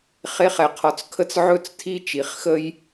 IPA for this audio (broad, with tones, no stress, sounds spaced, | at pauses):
χ e˩˥ χ ɛ˩ qʰ ɔ˩ t͡s kʰ ə˧ t͡s ʕ ɵ˧ t͡s tʰ i˧ t͡ʃ i˩ χ x ə˧ j